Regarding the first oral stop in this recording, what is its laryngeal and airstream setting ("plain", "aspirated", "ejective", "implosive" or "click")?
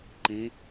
click